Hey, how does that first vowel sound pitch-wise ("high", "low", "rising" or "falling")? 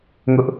high